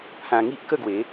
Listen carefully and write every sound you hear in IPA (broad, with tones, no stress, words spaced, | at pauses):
pʰã˧ŋi˦ʔkə˥˧ɡwe˨˦